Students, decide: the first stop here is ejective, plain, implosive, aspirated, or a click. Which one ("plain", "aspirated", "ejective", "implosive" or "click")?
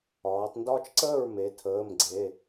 plain